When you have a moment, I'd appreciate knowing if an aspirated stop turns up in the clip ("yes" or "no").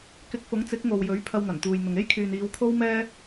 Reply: yes